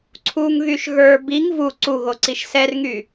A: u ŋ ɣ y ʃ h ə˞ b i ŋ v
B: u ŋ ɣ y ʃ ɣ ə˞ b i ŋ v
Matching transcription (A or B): B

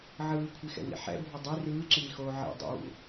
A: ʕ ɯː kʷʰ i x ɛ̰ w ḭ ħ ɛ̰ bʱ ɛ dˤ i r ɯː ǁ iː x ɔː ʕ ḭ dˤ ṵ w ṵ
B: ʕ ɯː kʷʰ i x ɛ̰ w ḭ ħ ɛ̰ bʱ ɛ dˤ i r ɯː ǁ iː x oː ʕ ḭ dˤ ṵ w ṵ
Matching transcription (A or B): B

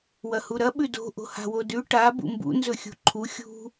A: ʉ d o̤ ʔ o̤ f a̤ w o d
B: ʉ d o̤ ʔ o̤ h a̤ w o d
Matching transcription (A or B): B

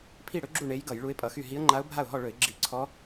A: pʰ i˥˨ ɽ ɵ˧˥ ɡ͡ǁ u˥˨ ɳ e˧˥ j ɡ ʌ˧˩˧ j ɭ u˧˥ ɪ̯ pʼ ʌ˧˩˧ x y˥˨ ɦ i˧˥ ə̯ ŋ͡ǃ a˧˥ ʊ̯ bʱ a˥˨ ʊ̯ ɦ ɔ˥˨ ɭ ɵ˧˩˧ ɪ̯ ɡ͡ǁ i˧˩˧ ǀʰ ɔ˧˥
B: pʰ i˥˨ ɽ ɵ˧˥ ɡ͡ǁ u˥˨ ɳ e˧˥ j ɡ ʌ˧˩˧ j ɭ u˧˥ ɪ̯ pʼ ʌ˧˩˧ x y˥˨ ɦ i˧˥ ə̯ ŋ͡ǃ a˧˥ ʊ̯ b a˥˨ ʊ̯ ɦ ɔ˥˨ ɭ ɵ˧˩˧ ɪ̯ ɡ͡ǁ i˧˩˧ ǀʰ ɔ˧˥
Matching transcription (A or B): A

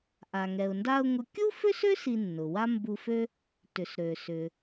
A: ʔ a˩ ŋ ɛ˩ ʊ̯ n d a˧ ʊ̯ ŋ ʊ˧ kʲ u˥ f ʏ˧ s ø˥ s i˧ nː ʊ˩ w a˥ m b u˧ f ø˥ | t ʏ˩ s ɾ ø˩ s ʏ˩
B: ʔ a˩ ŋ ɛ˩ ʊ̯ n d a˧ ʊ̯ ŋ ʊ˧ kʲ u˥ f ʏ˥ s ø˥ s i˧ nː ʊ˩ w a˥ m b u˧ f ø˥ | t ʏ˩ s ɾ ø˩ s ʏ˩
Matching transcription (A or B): B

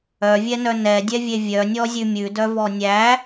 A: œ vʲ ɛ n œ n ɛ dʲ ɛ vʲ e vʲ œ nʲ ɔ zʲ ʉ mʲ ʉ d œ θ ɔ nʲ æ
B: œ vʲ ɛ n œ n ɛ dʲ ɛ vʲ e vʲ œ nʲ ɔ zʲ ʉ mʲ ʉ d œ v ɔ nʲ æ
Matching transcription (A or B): B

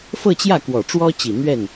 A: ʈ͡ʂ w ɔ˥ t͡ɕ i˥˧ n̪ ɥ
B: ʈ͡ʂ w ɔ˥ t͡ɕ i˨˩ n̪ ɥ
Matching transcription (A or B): B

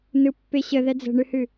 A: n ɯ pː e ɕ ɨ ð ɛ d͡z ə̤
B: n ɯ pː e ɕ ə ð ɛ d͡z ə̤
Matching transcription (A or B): B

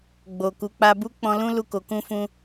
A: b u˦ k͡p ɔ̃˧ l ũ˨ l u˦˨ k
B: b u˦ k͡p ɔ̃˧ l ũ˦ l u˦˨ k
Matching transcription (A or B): B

